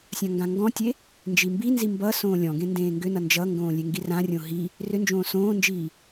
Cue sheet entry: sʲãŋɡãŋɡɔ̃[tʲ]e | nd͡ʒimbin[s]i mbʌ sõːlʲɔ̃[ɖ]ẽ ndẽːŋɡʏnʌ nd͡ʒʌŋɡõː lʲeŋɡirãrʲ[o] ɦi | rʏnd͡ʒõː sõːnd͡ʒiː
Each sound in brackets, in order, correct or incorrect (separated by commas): correct, incorrect, incorrect, incorrect